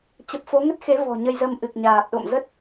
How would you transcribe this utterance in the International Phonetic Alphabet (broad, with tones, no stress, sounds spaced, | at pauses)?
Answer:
t͡ɕ ə˨˩ p̚ f o˨˦ ŋ ə˦˥ t̚ x e˨˦ v ɔ̤˨˩ ɲ ə˧ j z ə˧ m ʔ ɨ˨˩ k̚ ɲ aː˨˩ p̚ ɗ o̰˧˨ m z ə˦˥ t̚